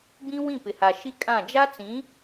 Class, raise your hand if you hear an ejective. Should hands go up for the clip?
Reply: yes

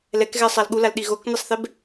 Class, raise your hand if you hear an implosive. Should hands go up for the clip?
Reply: yes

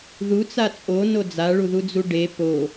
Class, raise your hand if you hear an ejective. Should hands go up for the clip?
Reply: yes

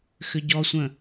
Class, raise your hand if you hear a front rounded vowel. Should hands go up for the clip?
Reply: yes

